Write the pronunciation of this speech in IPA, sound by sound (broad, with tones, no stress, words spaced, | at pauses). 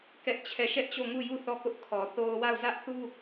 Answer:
kɛ˦ʔt͡ɕʰɛ˦˨ ʃɛ˦ʔt͡ɕo˦˨ŋu˦˨ju˦˨ θɔ˦˨kʊ˦ʔ kʰɔ˨θo˦ʊ̯ wa˦˨ʊ̯zä˦ʔθu˦